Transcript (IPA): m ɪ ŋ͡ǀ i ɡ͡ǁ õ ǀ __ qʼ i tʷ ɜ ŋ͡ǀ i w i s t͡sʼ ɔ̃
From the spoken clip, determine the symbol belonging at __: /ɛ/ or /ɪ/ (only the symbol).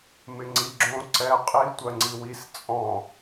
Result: ɛ